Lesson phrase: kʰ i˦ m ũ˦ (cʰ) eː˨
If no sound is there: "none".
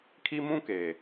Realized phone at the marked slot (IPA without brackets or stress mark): k